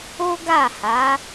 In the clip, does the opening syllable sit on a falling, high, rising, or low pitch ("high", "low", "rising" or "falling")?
high